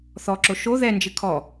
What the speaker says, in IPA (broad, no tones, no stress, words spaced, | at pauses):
θɔǁo ʃo ðɛnd͡ʒɨ kʰɔ